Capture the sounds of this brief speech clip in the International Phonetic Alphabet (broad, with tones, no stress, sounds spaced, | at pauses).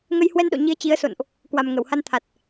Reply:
ŋ ə˧ j h w ɛ˧ n ɗ o̰˧˨ ɲ i˨˦ ə̯ t͡ɕ i˨˦ ə̯ s o̰˧˨ n ʔ | k w a˨˩ m ŋ ə˧˩ w h a˧ n t̪ʰ a˨˩ t̚